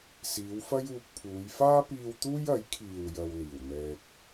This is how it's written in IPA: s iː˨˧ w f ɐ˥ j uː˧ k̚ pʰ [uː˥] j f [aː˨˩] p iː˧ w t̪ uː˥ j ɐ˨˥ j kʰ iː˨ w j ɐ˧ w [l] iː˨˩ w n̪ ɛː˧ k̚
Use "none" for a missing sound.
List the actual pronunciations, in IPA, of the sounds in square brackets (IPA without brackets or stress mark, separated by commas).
uː˨˧, aː˥, l